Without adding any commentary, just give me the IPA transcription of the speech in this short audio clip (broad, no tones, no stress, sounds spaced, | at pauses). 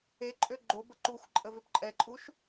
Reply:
e ǃʼ ø ɡ͡ǃ o b ə ǃ u xʷ ǃʼ ə v ø p ǃʼ ɛ ǃʼ u ʃ